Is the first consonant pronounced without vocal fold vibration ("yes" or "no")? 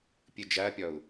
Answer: yes